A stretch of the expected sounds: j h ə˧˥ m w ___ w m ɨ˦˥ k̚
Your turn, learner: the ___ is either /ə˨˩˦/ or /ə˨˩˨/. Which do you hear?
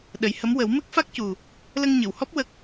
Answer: ə˨˩˦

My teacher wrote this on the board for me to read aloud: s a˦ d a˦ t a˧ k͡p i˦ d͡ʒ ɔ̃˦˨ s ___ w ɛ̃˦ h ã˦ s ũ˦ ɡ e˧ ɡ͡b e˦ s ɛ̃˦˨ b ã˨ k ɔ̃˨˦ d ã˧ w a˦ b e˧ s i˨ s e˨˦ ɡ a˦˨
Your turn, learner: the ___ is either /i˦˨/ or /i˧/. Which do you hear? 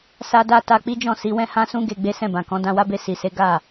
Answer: i˧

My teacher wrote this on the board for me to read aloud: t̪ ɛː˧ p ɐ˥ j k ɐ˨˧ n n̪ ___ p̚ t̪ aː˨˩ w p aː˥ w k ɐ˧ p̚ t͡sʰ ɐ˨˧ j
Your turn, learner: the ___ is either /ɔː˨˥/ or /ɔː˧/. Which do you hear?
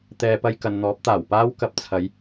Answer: ɔː˨˥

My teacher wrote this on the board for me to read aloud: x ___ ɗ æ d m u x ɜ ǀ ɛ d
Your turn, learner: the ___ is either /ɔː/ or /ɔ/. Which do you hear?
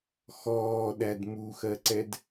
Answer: ɔː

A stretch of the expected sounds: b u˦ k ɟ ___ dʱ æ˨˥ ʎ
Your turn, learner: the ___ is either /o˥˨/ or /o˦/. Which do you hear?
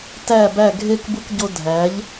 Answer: o˦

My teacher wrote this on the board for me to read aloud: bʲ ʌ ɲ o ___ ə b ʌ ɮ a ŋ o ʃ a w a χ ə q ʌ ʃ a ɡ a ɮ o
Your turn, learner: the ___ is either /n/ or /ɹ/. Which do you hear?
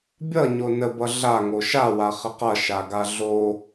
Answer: n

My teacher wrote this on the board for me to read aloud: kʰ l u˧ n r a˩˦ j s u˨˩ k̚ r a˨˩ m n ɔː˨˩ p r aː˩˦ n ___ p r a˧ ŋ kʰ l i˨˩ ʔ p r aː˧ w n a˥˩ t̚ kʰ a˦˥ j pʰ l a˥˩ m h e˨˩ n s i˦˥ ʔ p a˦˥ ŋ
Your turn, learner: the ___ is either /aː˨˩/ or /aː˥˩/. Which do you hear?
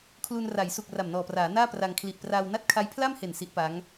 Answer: aː˥˩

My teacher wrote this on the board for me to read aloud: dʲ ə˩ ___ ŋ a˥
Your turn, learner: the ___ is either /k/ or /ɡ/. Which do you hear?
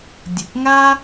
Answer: k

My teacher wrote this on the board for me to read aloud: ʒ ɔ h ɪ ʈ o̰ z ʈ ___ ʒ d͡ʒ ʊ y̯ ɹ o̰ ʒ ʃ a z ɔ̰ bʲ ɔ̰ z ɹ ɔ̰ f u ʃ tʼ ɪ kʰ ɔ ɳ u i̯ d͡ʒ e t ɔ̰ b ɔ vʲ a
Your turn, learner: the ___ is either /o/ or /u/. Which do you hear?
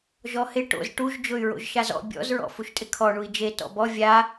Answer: u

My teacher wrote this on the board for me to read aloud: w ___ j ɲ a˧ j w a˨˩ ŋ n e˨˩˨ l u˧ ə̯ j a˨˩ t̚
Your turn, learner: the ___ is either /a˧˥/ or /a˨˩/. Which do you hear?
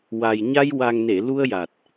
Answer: a˨˩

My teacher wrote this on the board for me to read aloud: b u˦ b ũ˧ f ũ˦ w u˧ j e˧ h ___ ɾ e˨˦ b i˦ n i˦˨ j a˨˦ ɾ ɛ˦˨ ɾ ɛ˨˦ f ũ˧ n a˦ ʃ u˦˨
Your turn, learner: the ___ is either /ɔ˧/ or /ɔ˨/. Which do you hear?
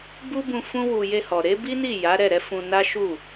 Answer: ɔ˨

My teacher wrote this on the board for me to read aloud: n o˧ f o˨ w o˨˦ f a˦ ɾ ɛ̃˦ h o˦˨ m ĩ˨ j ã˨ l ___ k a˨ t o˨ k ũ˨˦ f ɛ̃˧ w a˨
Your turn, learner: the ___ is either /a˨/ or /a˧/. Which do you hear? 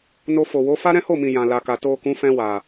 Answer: a˨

